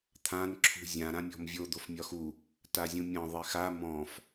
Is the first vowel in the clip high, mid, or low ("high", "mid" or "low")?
low